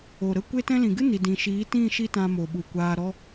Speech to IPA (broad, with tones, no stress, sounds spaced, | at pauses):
o˨ ɾ ə˦˨ kʷ e˦ t ɛ̃˦ l ĩ˨ ɡ ɨ˦ n i˨ d ĩ˨ ʃ iː˨˦ t ĩ˦˨ ʃ i˦ t ã˧ m o˨ ɓ u˨ kʷ aː˧ ɾ ɔ˦